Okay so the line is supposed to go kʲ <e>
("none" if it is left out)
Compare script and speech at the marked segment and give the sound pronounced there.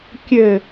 ɘ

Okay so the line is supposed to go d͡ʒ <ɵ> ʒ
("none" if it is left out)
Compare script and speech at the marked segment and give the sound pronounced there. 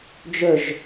ɵ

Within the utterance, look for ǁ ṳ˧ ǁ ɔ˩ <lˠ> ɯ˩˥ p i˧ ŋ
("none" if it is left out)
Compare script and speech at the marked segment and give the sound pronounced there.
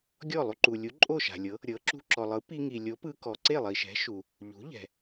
lˠ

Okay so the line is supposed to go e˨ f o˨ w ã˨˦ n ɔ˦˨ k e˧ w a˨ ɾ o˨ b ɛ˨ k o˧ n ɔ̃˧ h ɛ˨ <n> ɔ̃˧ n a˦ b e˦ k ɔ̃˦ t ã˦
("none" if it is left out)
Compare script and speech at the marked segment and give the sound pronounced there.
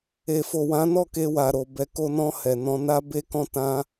n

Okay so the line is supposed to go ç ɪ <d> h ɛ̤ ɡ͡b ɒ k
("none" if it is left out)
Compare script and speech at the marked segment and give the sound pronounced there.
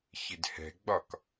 d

